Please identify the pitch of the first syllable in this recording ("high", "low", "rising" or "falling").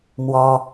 high